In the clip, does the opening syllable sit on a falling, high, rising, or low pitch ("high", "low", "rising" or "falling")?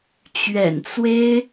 low